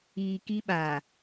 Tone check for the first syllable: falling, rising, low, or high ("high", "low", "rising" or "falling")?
low